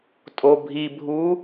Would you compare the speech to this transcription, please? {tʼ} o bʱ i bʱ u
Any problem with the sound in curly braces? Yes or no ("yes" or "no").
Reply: no